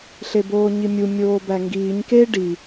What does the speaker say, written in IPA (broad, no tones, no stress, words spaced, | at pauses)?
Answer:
ɬeboːɲimʲu mʲoːbæŋɡiːɲ ke ɖi